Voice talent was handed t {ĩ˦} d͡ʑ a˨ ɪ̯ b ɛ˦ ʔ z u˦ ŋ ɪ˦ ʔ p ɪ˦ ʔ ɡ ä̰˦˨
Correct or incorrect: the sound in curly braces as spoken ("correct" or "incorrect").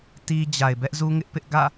incorrect